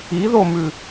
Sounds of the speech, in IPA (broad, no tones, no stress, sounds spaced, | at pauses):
i ð o m ʉ